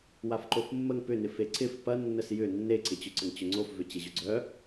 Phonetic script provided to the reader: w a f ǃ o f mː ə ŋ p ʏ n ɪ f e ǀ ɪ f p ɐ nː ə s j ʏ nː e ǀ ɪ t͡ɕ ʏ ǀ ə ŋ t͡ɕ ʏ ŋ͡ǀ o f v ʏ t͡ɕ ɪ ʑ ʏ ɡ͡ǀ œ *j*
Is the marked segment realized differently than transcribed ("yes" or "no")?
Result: yes